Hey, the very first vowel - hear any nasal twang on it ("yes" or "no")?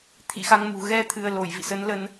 no